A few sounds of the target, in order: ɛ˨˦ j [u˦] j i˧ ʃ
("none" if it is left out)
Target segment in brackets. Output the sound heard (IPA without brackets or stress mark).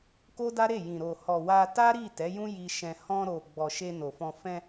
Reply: ũ˦